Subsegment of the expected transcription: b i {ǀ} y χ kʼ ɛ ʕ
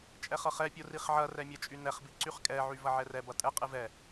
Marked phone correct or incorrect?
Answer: correct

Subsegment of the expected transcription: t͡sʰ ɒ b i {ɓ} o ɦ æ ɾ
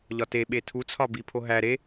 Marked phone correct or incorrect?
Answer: incorrect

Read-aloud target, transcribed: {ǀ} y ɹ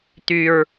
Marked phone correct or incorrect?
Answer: incorrect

